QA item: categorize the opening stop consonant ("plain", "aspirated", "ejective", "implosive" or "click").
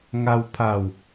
aspirated